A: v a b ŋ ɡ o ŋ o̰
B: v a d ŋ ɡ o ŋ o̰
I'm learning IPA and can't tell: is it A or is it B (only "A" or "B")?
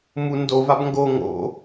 A